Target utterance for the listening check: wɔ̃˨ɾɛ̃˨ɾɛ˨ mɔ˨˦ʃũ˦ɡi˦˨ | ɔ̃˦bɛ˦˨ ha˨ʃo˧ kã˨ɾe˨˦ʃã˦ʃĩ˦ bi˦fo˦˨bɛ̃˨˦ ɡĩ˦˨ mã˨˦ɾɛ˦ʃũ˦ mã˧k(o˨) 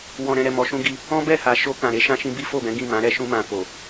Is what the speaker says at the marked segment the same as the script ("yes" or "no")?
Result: yes